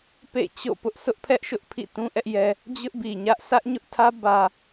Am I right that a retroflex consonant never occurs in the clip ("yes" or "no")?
yes